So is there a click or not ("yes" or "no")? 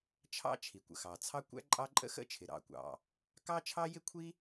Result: yes